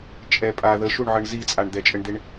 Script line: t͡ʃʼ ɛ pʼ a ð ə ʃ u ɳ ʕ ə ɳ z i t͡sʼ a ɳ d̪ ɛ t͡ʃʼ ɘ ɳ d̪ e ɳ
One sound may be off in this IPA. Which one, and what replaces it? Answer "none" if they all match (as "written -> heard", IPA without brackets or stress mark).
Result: none